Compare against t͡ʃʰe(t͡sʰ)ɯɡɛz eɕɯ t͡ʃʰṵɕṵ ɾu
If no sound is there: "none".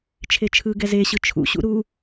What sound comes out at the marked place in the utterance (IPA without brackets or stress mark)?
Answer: t͡ʃʰ